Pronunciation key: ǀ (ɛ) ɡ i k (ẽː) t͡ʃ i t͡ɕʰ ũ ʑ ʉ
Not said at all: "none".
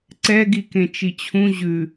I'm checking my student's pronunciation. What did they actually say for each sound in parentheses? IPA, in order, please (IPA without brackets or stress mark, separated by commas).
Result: ɛ, ẽ